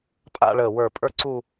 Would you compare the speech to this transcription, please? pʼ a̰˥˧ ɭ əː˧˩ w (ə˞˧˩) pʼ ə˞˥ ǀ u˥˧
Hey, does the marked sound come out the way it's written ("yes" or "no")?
yes